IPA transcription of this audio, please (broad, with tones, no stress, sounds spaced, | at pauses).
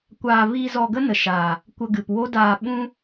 kʷ aː˧ v iː˧ z ɔ˧ ɡ ə˦ n ə˨ ʃ aː˨ | kʷ ə˧ ɡ ɨ˨ p w o˦ d aː˧ ɓ ũ˦